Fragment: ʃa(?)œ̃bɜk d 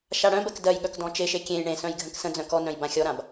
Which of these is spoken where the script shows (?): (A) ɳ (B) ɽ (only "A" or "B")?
B